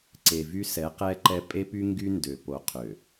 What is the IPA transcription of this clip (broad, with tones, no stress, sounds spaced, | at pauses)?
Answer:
ǀ e˨ v y˦ s ɛ˨˦ q ɛ˦ ǃ ɛ˦ pʼ e˦ p y˦ ŋ ɡ y˦ n d ø˨ p o˨ qʰ ø˨